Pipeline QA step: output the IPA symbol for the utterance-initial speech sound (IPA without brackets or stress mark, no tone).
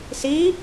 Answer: s